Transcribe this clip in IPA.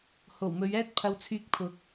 h o˨˩ w m ɵ˨˧ ɥ ɛː˥ t̚ pʰ ɐ˧ w t͡sʰ yː˧ k̚ pʰ ʊ˨˥ k̚

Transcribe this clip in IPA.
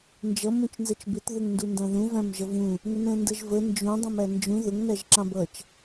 n d͡ʒ ʌ m ũ t͡ʃ n z ɛ t͡ʃ b ɪ t ð ʊ ŋ n d u n d ɑ̃ ð ũ v æ̃ m ʒ ʌ v ũ | ŋ ə n ɛ̃ n d ə ʒ v ə n d͡ʒ ũ dˤ ũ m æ n d͡ʒ ũ ð ʊ ŋ n æ ʒ ǁ ɑ̃ b ʌ t͡ʃ

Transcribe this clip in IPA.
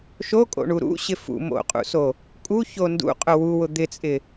ʃ o kʼ o̰ ɳ u ɾ ṵ ɕ ɪ f ṵ m o̰ qʼ ṵ s o | kʼ u ç o n d ṵ qʼ ʊ w u w ʊ d̪ ɪ t͡sʼ ɪ

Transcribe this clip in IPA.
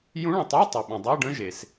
j ũ˧˥ ɭ ə̃˩ tˤ o˧˥˧ tˤ u˩ ɓ ə̃˩ dˤ a˧˥˧ ɖ ə̃˧˥˧ ʒ e˩ s

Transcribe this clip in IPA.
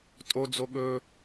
tʼ o d͡z o ɠ ɵ

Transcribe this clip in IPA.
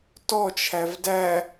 t ɔ t͡ʃʰ æ v d æ

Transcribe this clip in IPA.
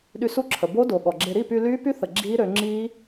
ɗ y˧ s u˦˥ ǁʰ ə˩ b o˦˥ d o˩ ɠ ɔ˩ ɡ͡ǁ e˧ ɾ i˥˨ p y˧ l yː˦˥ p y˦˥ θ ə˩ ɡ͡ǁ iː˦˥ ɾ ø˩˧ ŋ͡ǁ iː˦˥

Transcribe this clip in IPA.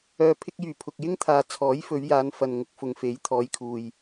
œː˨ pʰ ɪ˧ k̚ j yː˨˩ pʰ ʊ˨ k̚ j ɪ˥ ŋ t̪ʰ aː˨ t͡sʰ ɔː˨˥ j f ɵ˨˧ ɥ j aː˨˧ n f ɐ˨ n ŋ ʊ˧ k̚ f ʊ˨ ŋ f e˨˥ j t̪ʰ ɔː˨˧ j kʰ uː˨ j

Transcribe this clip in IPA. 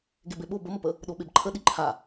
ɡ e b e ɓ o b ə m ə p ə | ɗ o ɓ e b ǃʰ ə ɗ i ǃʰ a

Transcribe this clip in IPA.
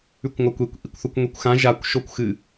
ʉ kʷ ŋʷ a kʷ e kʷ ʔ i kʷ θ u kʷ ŋʷ i kʷ x ã ʒ a kʷ ʃ o kʷ x ɨ

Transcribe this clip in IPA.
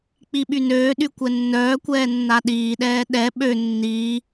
k͡p i ɓ y n øː ɗ y kʷ ɛ nː œː kʷ ɛː nː a ɗ iː ɗ ɛː ɗ ɛ ɓ ø nː iː

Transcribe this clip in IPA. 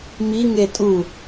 m i ŋ e tʼ u

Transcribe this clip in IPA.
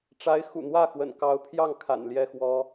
ʈ͡ʂ a˧˥ ɪ̯ x ṵ˨˩ n̪ w ä˥˩ x w ə̰˨˩ n k ɑ˧˥ ʊ̯ pʰ j ɑ˥˩ ŋ kʰ a̰˨˩ n l j ɛ˥˩ x w ɔ˥

